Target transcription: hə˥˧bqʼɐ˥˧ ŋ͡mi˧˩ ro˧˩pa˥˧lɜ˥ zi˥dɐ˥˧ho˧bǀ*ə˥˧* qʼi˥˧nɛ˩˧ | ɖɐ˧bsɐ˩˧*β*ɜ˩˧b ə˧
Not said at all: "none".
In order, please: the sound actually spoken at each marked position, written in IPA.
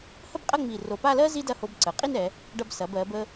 ə˩˧, b

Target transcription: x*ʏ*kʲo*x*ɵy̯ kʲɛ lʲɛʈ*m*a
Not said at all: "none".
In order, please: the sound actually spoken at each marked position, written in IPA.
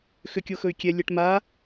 ʏ, x, m

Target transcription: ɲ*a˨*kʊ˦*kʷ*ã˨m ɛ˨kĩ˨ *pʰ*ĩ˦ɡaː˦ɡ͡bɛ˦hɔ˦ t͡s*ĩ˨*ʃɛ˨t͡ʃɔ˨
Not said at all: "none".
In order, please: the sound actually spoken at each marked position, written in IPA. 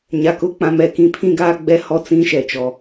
a˨, k͡p, pʰ, ĩ˦

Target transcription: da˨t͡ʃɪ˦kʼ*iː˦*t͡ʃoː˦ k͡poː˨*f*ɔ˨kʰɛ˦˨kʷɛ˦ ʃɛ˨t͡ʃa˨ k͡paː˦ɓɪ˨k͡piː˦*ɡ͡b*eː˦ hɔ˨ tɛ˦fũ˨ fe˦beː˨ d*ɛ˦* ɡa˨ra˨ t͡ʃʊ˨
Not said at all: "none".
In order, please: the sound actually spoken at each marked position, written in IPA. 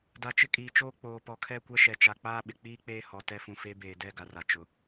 iː˨, p, k͡p, ɛ˦˨

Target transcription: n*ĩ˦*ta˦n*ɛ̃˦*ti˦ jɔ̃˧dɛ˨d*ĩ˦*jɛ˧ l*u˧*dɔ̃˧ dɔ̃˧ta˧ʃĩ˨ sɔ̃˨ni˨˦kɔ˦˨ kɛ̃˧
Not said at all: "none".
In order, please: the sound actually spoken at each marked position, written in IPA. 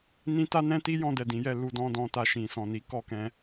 ĩ˦, ɛ̃˦, ĩ˨˦, u˧

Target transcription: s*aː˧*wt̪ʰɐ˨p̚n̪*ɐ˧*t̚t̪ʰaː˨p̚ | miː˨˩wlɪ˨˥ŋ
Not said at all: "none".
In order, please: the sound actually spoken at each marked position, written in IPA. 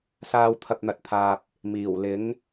aː˧, ɐ˨

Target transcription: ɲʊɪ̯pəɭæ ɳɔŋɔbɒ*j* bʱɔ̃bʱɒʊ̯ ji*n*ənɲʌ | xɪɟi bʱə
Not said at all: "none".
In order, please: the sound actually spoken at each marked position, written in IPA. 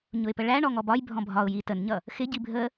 j, t

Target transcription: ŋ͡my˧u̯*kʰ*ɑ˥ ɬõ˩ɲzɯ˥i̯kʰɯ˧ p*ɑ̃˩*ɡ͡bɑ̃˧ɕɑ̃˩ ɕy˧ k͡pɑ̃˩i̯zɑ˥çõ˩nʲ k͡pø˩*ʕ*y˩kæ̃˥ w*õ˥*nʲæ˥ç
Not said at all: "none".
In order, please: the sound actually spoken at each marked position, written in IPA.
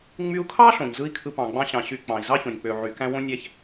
kʰ, ɑ̃˩, ʕ, õ˥

